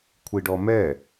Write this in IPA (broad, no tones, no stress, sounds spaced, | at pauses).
kʷʰ i ɖ ɔ m ɛ